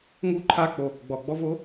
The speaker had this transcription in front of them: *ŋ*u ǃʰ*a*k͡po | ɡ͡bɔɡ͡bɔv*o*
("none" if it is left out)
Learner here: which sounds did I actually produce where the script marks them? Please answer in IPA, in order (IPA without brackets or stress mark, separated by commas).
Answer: ŋ, a, o